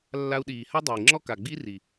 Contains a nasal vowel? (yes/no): no